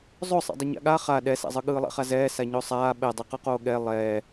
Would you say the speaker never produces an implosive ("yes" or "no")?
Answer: no